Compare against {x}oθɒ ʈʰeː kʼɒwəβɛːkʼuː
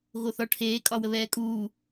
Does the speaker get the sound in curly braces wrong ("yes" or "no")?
yes